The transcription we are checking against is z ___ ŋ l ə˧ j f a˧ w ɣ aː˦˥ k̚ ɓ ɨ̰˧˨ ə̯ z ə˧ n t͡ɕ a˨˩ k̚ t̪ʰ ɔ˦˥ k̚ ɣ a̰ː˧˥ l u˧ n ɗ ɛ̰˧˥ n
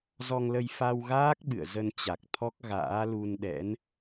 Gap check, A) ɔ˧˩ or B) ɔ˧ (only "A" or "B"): B